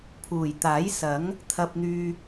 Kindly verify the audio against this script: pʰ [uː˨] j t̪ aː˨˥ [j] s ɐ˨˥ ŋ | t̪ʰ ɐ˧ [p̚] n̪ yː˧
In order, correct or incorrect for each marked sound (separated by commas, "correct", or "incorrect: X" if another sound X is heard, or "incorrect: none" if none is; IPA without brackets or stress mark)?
incorrect: uː˨˩, correct, correct